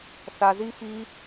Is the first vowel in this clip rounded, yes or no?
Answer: no